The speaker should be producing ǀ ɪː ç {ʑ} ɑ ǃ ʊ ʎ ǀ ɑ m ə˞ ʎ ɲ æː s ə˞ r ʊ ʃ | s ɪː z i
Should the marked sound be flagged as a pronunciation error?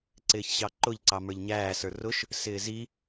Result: yes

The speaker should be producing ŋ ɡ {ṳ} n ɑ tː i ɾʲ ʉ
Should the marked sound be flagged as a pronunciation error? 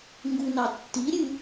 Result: yes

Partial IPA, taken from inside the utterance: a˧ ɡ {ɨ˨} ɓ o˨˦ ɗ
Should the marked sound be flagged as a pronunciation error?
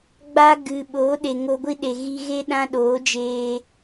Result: no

